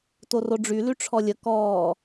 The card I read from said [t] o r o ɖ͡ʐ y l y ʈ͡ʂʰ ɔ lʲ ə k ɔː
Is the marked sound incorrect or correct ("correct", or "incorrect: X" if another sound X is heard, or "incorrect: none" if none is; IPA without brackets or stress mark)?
correct